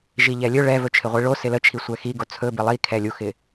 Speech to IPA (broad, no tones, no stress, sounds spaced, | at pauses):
ʒ i ʎ ɛ lʲ ɵ ɭ ɛ v ɵ t͡ʃʰ ɪ ʁʷ i ɭ o s ɪ l ə t͡ʃʰ i sʷ ɛ x i ɡ o t͡sʰ ɵ b ɪ lˠ i kʰ ɛ lʲ u x ɪ